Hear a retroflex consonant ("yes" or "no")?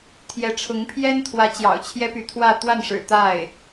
yes